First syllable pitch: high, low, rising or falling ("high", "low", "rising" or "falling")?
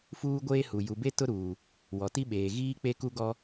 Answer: high